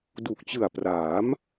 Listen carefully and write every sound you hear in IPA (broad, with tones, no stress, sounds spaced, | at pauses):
d u˨˩ k̚ t͡ɕ ɯ˨˩ a̯ p r aː˩˦ m